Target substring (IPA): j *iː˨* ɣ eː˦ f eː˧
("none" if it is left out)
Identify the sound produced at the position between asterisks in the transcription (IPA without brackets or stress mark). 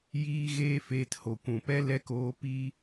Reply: iː˦